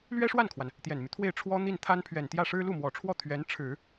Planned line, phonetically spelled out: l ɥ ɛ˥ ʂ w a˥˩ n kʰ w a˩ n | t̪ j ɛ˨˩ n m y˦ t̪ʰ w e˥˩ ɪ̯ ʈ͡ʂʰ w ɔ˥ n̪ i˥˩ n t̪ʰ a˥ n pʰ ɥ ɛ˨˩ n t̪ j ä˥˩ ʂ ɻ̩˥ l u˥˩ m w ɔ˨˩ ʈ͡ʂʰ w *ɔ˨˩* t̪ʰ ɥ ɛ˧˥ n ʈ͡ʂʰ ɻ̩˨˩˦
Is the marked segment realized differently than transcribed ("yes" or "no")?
yes